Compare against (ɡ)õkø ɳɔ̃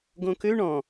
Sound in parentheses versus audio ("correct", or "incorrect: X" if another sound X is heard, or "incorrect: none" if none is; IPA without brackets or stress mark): correct